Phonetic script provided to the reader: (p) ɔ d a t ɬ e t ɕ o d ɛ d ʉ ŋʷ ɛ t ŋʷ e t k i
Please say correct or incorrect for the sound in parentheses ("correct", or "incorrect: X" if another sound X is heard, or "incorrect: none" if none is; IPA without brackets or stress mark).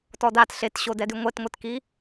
incorrect: t